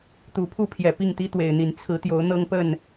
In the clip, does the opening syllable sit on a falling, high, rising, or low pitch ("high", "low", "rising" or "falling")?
rising